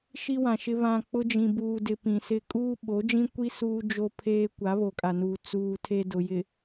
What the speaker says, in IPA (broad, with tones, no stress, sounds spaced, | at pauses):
ʃ i˦ w ã˨ ʃ ɪ˦ β ã˨ k͡p ʊ˦ d͡ʒ ĩ˨ b uː˨ d ɪ˨ p ĩ˨ s ɪ˦ kʼ uː˦ ɓ o˨˦ d͡ʒ ĩ˦ kʷ i˦ s uː˦ d͡ʒ o˦ pʰ eː˦ kʷ a˨˦ β o˨ kʼ a˨ n uː˨ t͡s uː˦ tʰ e˦ d ʊ˨ j ɪ˨